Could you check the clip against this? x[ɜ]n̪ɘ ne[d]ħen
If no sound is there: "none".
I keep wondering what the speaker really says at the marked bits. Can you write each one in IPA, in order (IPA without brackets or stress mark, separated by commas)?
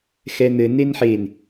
ɛ, n